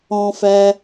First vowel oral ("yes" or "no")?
no